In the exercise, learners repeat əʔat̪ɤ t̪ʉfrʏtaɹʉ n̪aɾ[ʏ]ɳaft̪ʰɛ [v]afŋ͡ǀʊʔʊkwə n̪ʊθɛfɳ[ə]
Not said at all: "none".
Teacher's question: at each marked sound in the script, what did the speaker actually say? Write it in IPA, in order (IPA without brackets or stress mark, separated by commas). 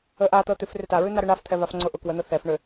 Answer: ʏ, v, ʏ